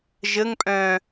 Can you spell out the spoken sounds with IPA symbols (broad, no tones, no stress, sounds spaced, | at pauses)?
ʒ ə ŋ pʼ œ̃